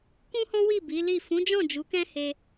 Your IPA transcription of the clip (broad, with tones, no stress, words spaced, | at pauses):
kũ˦hɔ̃˦wi˦˨ bi˨˦li˦˨ fũ˨˦d͡ʒɔ̃˦˨d͡ʒu˨˦ kɛ̃˦ he˧